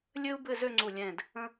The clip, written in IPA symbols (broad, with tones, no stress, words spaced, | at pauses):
lʲɘ˥u̯ bɘ˥˧zø˥˧ŋ͡ǀu˧˩lʲɛ̃˧˩d | ə̃˥